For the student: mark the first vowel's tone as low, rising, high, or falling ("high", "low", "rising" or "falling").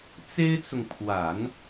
high